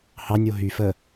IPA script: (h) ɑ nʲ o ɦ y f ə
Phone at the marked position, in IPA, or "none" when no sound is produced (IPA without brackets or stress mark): h